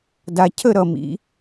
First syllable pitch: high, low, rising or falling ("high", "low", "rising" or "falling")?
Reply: low